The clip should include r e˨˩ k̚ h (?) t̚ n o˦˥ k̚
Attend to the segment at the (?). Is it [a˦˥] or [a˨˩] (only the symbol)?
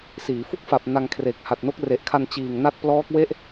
a˨˩